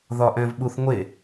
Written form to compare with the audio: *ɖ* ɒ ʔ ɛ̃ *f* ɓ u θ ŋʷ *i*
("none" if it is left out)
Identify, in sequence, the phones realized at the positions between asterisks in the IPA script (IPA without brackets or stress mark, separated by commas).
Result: ð, v, e